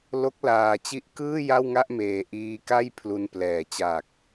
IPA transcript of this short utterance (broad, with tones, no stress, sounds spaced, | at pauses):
l o˦˥ k̚ l aː˧ t͡ɕ i˦˥ ʔ k ɯː˥˩ j a˥˩ w ŋ a˥˩ ʔ m eː˧ ʔ iː˧ k a˥˩ j pʰ l u˧ n p l ɛː˨˩ t͡ɕ aː˨˩ k̚